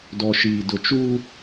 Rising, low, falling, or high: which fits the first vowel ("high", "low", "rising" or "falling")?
low